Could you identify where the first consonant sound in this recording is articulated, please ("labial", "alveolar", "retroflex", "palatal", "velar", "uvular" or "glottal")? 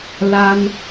alveolar